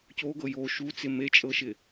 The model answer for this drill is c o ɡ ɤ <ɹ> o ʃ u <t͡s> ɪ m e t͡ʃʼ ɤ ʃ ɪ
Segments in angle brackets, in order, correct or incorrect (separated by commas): incorrect, correct